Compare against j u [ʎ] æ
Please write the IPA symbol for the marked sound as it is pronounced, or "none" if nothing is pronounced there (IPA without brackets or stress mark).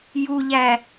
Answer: ʎ